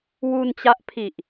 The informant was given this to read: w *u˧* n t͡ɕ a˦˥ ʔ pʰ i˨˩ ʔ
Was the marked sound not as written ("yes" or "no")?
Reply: no